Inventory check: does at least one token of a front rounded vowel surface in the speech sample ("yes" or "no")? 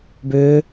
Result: yes